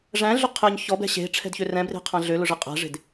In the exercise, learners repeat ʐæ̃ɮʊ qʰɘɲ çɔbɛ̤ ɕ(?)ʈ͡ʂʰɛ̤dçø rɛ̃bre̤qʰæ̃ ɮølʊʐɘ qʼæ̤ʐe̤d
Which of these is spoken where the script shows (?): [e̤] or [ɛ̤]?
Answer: e̤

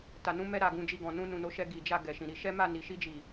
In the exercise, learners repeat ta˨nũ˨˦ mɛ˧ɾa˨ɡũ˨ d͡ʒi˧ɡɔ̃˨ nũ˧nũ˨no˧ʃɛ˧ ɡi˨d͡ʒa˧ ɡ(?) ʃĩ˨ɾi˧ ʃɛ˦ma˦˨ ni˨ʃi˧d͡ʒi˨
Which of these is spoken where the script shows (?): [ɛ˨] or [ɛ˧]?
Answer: ɛ˨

